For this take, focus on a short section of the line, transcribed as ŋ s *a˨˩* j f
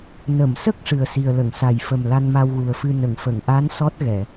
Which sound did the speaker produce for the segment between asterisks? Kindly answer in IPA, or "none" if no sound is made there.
a˨˩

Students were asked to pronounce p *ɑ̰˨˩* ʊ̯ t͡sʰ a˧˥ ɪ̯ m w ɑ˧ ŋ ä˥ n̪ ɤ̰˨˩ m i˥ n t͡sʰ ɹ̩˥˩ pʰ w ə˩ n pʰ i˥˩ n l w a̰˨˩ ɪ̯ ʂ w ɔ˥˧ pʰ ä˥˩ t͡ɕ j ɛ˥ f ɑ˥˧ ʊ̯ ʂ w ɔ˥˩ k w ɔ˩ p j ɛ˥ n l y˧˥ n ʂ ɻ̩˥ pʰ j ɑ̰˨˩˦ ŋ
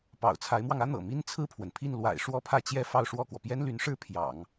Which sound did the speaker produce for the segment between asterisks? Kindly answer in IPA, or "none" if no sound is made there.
ɑ̰˨˩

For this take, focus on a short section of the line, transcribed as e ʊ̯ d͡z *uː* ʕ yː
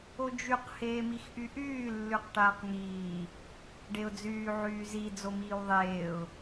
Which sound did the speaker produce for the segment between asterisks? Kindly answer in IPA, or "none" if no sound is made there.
yː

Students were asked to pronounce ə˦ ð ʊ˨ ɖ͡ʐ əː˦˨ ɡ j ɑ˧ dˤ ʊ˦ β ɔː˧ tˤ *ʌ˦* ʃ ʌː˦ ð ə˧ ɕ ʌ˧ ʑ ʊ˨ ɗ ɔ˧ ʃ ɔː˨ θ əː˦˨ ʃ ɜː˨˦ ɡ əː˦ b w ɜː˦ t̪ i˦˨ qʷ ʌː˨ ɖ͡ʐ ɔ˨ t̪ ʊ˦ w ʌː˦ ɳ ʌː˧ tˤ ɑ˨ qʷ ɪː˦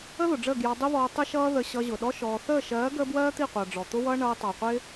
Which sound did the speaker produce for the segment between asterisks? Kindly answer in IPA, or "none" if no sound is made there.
ə˦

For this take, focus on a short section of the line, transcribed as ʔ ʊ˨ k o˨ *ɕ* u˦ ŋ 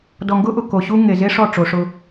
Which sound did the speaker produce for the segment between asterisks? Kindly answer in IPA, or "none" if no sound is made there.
ɕ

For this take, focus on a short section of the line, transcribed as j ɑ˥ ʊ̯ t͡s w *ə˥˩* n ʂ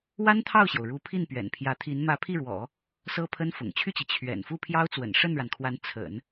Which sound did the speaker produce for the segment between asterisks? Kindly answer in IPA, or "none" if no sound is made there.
ə̰˨˩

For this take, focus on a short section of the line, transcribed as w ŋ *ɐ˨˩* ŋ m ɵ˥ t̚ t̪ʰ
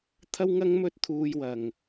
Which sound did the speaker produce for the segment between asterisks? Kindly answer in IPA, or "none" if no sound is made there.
ɐ˥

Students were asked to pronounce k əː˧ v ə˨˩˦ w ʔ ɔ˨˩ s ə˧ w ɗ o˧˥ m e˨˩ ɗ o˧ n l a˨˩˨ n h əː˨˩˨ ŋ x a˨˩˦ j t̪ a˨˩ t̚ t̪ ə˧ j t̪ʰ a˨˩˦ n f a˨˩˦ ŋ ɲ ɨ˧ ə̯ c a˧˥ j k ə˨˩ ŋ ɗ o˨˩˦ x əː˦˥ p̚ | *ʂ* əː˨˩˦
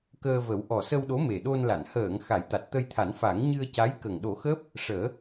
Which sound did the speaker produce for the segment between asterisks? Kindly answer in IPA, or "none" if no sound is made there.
ʂ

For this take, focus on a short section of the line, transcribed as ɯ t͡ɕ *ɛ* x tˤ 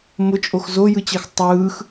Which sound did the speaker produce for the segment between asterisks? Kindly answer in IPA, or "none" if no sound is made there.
ɛ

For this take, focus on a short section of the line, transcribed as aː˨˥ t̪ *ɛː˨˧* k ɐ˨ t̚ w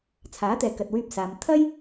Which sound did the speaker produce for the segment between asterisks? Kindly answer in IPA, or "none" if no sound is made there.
ɛː˨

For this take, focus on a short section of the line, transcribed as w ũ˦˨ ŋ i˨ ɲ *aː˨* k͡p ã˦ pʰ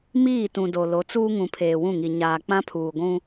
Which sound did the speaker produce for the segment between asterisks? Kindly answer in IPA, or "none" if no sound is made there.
aː˨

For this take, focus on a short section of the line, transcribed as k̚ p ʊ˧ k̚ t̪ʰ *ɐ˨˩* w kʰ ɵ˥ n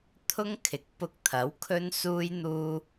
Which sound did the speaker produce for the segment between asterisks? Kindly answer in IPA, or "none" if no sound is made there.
ɐ˨˥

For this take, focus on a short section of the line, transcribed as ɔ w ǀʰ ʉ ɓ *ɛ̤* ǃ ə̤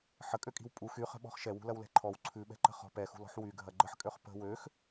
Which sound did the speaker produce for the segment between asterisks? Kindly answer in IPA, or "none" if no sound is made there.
ɛ̤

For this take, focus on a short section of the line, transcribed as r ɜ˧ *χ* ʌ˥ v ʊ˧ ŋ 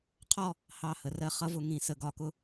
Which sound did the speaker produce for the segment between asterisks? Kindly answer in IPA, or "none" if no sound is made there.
χ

